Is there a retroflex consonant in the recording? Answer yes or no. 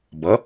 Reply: no